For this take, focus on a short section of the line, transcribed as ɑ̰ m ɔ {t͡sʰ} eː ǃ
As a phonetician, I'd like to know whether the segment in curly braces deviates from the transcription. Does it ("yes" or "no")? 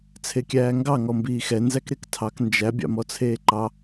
no